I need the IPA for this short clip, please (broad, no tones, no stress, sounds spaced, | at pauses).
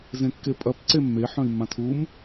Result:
z ẽ kː e pʼ ɐ p ǀ e mː e ħ œ̃ i̯ mː ã tʰ u m